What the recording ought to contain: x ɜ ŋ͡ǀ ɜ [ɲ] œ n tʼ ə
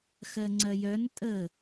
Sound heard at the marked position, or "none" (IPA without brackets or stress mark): j